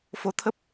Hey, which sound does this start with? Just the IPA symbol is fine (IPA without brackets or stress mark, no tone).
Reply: f